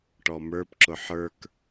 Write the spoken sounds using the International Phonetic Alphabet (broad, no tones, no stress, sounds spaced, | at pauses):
ʈ ɔ m ə˞ p ǁ ʊ ħ ə˞ k